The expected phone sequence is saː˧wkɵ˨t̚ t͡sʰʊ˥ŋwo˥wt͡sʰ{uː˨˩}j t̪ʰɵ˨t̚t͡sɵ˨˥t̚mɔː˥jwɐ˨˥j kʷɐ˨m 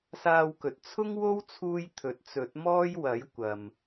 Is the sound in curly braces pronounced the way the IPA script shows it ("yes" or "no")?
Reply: no